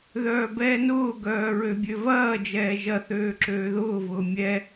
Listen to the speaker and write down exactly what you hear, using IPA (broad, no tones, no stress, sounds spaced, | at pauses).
ð œː b ɛː n ʊː ɡ œː ɹ ø bʲ ø v ɐː d͡ʒ ɛː ʒ ɐ θ øː ǁ øː ð ʊː v ʊː mʲ ɛ